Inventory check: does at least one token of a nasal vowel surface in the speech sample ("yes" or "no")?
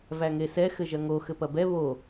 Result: no